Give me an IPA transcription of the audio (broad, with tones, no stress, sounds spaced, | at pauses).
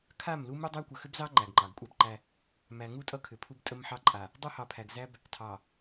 kʰ a˦˨ m l u˦ m u˦ dˤ æ˦ kʷ ə˨ x ʏ˦ b z ɑ˦ ŋ͡ǃ æ˨ ɡ ŋ͡ǃ ɑ˨ ɡ kʷʼ æ˦ b ǃ æ˦ | m æ˨ ŋ u˦˨ tʼ ʌ˦ kʰ ʏ˨ pʰ u˦ b tʼ ə˦ m ħ ɑ˦ ǃʼ a˨ | dˤ u˦ h ɑ˨ pʰ æ˨ ɡ z æ˦ b | tʰ ɑ˨